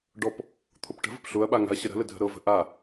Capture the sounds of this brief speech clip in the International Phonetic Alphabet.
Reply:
ɖ ɔ p | t̪ʰ ʊ p ʈ ə̤ v ə̤ p ɬ ʊ ɐ̯ ɓ a ŋ a̤ ɐ̯ ɕ ə ɾ ə̤ l ə dʱ ə̤ ɾ ɤ v ə̤ ʔ a

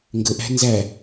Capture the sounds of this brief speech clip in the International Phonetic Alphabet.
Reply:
ŋ ɡ ə ʔ æ̤ n z æ

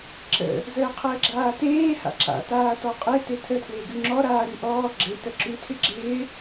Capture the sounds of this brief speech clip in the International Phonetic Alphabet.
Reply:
ǁ ə̰ | z əː qʰ əː ɡ͡ǁ aː t eː h a̰ ǁ a̰ t aː t ɔ qʼ e t e tʰ ə tʰ w e ɡ ʉ ŋ͡ǁ ɔ ɾ aː ɾ ʉ ʔ ɔː ɡ͡ǁ e t ə ǁ ʉ tʰ ɪ ɡ͡ǁ ɪː

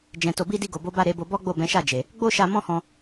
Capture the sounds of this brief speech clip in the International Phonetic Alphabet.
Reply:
d͡ʒ ɛ̃˨ t o˨ b i˧ d i˧ ɡ o˨ b o˨˦ b a˦˨ ɾ e˨˦ b o˧ b ɔ˦ ɡ͡b o˦˨ b ɛ̃˨˦ ʃ a˦˨ d͡ʒ e˨ | ɡ͡b o˦ ʃ a˧ m ɔ̃˦ h ɔ̃˧

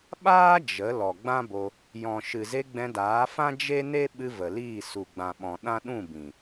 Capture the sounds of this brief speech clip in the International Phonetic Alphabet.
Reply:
ɓ aː˦ d͡ʒ ə˨˦ l ɔ˨ ɡ͡b ã˦ b o˧ | j ɔ̃˨ ʃ ɨ˨ z e˧ ɡ͡b ɛ̃˧ d aː˨˦ f ã˦ d͡ʒ e˦ n e˦ ɓ ɨ˧ v ə˨ l iː˦˨ s u˨ ɡ͡b ã˨ ɓ ɔ̃˨ ɗ ã˦ ɗ ũ˦˨ b ĩ˨

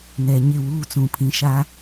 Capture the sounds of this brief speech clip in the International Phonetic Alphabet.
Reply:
n ɛ˨ ɲ ɪ˦˨ w uː˦ t͡s ũ˨ pʰ ĩ˨ ʃ a˦

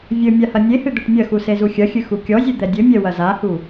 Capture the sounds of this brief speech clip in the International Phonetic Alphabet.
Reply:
vʲ ɘ mʲ a h ɐ nʲ e h ɨ d̪ ɘ ʈ mʲ ɐ x u s e z u xʲ ɐ xʲ ɨ x u kʲ ɔ zʲ ɨ d̪ ɛ dʲ ɘ mʲ ɛ w ɐ z a h u

